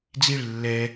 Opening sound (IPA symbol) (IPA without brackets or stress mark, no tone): d͡z